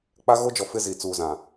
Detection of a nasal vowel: present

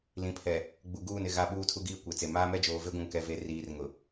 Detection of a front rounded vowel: absent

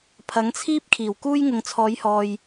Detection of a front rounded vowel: absent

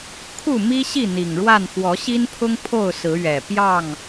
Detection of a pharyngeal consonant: absent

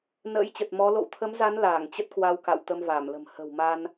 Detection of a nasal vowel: absent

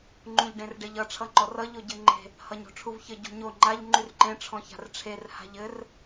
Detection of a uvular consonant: absent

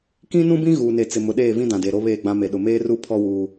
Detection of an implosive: present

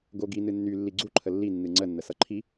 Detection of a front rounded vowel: present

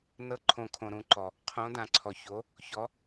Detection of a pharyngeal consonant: absent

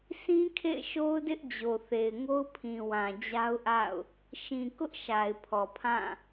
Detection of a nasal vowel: present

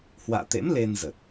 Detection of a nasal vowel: absent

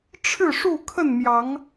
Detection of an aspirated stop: present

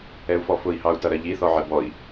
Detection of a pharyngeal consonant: present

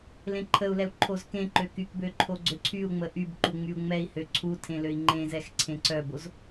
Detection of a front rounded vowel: present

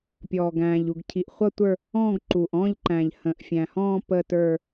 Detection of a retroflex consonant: absent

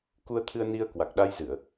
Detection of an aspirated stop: present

